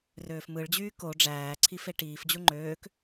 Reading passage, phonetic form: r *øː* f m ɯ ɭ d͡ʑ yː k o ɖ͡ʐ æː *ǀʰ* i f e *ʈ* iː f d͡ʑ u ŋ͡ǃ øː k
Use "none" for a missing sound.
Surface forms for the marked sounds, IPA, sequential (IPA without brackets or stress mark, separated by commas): øː, ǀʰ, ʈ